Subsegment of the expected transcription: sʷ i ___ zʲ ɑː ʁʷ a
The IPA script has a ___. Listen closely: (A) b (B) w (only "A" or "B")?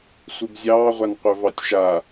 A